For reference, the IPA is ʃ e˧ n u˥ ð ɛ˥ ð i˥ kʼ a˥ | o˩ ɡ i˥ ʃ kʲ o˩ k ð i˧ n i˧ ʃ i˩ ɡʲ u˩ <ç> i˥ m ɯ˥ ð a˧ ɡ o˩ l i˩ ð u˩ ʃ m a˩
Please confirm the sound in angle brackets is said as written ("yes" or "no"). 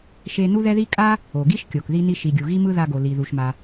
no